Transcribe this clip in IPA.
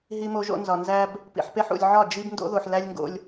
ɦ i˨ m o˨ ʒ o̰˨ n z ɒ˨ n z æ˦ b | p ḭ˨ ħ p e˦ ħ ṵ˨ lʲ ʕ ɒ˦˨ d͡ʒ i˦ b n d o̰˦ ð o˨ ħ l æ˦ lʲ ŋ ɡ o̰˦ lʲ

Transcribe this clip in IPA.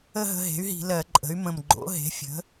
ə˥˧ ɦ ə̤˧ ɦ e̤˩˥ y̯ ɦ i̤˧˩˧ l ɜ˧˩˧ ǃʼ ə̤˩˥ y̯ m ə̃˨˩ m ɡ͡ǃ o̰˩˥ ɦ e̤˩˥ fʲ ə̤˩˥

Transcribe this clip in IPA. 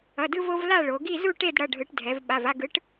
ʌ˩˧˩ d ɯ˧ v o˧ v l a˥˨ ɭ o˩˧ ɡ i˥˨ z u˥˨ ʈ e˥˨ d ɽ ʌ˩˧˩ ɖʱ ɯ˩˧ ʈ dʱ ɛ˩˧ v ɓ a˩˧˩ v a˥˨ ɡ ɯ˨˥ ʈ

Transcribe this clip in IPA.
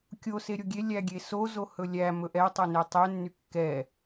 kʲ o s e ɾʲ o ɡʲ e lʲ æ ɡʲ e s o z o h ɵ lʲ æ m ɵ ʔ ɛ tˤ o n e tˤ ɛ nː y kː ɛ

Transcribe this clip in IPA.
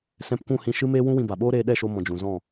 s ɛ̃˧ p kʷ ũ˦˨ h ĩ˧ ʃ ɨ˦ m eː˦ w ũ˦ w ĩ˧ b a˨ ɓ oː˦ ɾ eː˧ ɗ ɛ˦˨ ʃ o˧ m ɔ̃˨ d͡ʒ ũ˨ z ɔ̃˦˨

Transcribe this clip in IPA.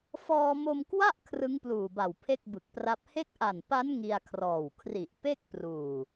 f ɔː˧ m o˧ m k w a˥˩ ʔ kʰ r ɯ˦˥ ŋ p l uː˨˩ b a˨˩ w pʰ e˥˩ k̚ b ɯ˨˩ k̚ p r a˦˥ p̚ h e˦˥ k̚ ʔ a˨˩ n p a˦˥ n ŋ i˧ a̯ kʰ r ɔː˨˩ w kʰ r i˨˩ ʔ p e˥˩ k̚ p r uː˨˩

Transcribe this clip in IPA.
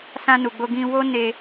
s ã˧ n u˨ ɡ͡b o˧ ɡ ĩ˧ w o˦ n e˧

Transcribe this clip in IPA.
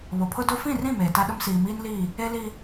β o˨ pʰ ʊ˦ d o˦ f ĩ˦˨ r ĩ˦˨ m eː˨ t a˦ ɗ ʊ˦ m s iː˨ m iː˦ n l iː˦˨ | e˦ l i˦

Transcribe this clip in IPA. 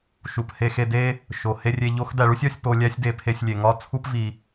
ʃ u˨ p h e˧ x e˧ d e˦ | ʃ o˨ h e˧ rʲ e˧ ʎ o˦ x d æ˧ ɭ u˦ sʲ ɒ˦ sʲ p o˧ lʲ æ˦ sʲ d e˧ pʰ e˧ sʲ lʲ e˨ ŋ ɒ˦ t͡sʰ u˦ p v i˧

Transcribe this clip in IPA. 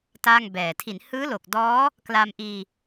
t a˥˩ ŋ b ɛː˨˩ tʰ i˩˦ n h ɯː˦˥ l o˨˩ k̚ d ɔː˦˥ | k l a˧ m ʔ iː˧

